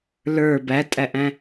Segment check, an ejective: present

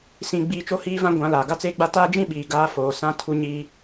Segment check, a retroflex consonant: absent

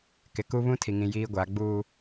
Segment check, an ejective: absent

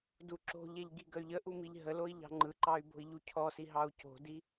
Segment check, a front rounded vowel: present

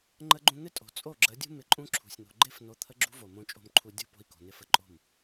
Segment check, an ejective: present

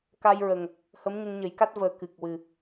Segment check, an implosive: absent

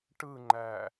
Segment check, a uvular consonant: absent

